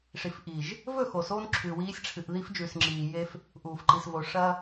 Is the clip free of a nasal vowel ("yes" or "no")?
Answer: yes